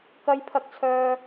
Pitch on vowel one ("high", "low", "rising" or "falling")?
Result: high